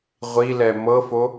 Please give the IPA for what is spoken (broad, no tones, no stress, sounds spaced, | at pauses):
ʁʷ i l ɛ m ɤ f o